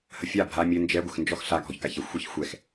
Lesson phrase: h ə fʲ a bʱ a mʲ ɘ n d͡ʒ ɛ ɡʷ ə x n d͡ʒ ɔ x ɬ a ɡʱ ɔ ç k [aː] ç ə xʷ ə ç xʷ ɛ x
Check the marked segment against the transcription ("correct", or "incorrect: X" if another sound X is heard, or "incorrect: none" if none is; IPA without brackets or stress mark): incorrect: a